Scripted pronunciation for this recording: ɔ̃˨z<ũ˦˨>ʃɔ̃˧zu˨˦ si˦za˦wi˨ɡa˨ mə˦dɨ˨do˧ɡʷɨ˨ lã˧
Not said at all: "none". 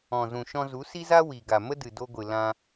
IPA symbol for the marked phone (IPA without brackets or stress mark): ũ˨